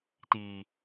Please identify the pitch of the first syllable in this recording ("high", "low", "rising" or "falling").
low